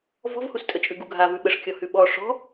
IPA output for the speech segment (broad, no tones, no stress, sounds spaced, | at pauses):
v ɔ̤ v h u s tʼ ə t͡ʃʼ ʉ ɡ u ɡʱ a v ʉ ɓ ə ʂ kʲ ɔ h ʉ ɓ ɔ ʂ ɔ̤